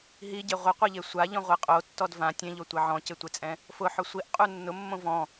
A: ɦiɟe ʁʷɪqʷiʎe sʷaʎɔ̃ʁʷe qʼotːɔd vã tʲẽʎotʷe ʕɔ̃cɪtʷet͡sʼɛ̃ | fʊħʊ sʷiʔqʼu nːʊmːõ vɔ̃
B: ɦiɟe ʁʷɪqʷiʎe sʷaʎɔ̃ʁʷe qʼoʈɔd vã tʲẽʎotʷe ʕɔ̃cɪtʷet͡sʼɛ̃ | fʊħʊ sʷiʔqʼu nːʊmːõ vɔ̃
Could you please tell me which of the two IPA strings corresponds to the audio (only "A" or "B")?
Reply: A